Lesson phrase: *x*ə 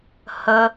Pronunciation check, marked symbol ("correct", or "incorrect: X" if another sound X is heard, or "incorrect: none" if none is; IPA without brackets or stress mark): incorrect: h